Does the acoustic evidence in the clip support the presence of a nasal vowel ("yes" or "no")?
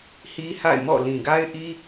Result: yes